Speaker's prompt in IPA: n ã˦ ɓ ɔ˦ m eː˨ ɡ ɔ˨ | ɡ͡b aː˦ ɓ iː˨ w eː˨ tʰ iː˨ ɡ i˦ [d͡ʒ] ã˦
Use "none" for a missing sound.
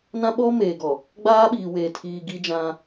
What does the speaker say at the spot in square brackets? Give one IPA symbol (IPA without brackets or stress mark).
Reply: d͡ʒ